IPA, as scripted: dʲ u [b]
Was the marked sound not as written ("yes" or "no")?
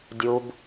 no